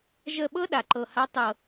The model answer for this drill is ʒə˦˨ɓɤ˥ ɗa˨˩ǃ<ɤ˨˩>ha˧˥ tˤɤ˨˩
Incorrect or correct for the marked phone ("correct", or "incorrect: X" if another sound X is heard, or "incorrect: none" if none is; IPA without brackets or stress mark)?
correct